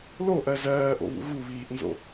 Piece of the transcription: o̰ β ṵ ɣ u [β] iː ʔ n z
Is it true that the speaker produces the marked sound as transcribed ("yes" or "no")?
yes